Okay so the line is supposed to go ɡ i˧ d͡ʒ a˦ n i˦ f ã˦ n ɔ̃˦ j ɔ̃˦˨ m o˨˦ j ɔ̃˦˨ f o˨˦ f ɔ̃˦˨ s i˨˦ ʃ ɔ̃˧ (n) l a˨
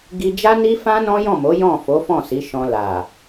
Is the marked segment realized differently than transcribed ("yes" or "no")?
yes